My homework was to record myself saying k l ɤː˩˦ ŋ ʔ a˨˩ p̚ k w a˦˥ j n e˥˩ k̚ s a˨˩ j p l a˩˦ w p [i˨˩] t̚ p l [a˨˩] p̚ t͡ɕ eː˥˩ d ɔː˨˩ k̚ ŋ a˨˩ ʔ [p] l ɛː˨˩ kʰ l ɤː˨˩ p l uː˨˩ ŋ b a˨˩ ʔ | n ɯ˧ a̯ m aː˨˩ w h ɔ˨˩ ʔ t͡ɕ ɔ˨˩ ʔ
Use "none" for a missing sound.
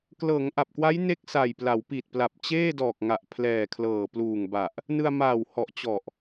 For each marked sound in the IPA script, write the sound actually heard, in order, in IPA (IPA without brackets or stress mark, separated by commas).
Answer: i˨˩, a˨˩, pʰ